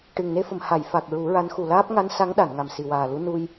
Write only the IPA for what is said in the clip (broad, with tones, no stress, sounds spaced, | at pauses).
ʈ ɨ˨˩ ŋ n e˧ f ə˨˩˨ m h a˨˩˨ j f a˨˩ k̚ ɹ u˨˩˦ ɹ a˧˥ n x u˨˩ l aː˦˥ p̚ ŋ a˧˥ n s a˧˥ ŋ ɗ a˨˩˨ n ŋ a˨˩ m s i˨˩ w aː˨˩ l u˧˥ n u˧ j